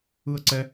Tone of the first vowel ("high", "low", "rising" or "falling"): falling